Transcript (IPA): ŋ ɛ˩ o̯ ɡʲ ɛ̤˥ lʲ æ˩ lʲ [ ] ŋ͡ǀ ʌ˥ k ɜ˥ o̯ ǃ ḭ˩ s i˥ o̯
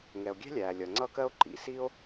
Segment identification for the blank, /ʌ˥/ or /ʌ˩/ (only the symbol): ʌ˩